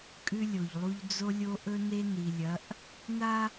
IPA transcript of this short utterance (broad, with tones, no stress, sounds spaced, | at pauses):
kʼ ʉ˦ lʲ o˨ ʎ lˠ u˦ ʎ d͡z o˦ lʲ o˦ ʔ ɵ˦ n e˦ n i˨ lʲ ɐ˨˦ ʔ | n a˦